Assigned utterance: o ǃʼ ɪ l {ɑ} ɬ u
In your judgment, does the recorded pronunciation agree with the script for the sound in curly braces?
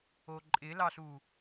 yes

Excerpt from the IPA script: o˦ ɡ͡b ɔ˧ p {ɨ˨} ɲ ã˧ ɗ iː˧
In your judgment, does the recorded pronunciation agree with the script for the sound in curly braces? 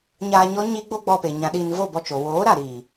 no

